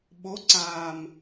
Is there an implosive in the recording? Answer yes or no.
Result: yes